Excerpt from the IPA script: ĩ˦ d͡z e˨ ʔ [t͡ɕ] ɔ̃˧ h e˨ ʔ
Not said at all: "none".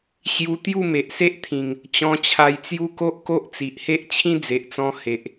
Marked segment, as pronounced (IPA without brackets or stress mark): t͡s